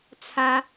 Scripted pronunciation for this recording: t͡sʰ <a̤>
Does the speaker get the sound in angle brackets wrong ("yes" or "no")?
yes